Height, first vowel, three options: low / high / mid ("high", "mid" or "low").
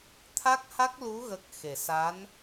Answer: low